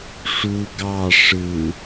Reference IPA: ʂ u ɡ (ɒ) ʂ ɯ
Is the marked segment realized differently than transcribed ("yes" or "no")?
yes